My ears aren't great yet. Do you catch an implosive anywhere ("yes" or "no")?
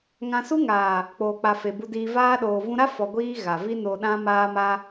yes